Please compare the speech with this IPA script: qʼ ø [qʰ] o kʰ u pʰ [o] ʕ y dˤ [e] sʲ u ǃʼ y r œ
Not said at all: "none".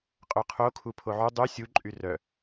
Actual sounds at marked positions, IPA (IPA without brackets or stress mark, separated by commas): qʰ, o, y